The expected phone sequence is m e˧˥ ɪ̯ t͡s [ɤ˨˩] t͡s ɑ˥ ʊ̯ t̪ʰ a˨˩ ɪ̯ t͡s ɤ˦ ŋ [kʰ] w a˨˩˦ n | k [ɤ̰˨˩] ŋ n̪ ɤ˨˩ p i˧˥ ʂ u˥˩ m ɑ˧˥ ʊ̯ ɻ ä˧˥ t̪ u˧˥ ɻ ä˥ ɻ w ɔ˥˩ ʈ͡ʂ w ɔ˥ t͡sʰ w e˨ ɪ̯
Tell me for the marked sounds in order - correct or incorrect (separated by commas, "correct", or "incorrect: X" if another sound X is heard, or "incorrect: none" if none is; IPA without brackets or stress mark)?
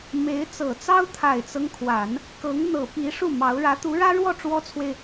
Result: correct, correct, incorrect: ɤ˧˥